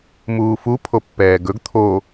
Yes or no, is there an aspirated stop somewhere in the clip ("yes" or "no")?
yes